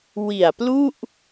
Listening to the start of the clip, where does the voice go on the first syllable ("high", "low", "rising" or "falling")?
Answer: low